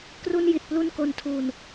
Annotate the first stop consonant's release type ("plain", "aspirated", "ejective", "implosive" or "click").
plain